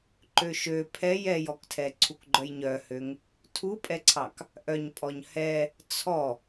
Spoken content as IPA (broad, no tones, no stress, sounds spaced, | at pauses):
ǃ ø ʃ ø pʰ ɛ j ɛ j ɔ k tʰ ɛ ǀʰ u k ɡ͡ǃ œ j ɲ œ h ø ŋ | tʰ u pʼ ɛ ǀʰ ɑ k | ʔ œ ɲ pʼ ɔ ɲ h ɛ | t͡sʰ ɔ